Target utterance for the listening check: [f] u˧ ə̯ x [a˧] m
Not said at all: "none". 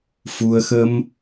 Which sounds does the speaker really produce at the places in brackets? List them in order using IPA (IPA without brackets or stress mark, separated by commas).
f, ə˧